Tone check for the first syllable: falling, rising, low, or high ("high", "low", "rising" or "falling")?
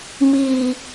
high